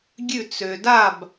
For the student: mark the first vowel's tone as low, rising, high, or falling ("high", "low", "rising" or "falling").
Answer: falling